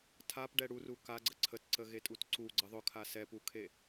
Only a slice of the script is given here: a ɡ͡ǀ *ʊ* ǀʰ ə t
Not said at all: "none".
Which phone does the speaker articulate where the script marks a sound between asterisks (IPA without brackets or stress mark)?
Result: ə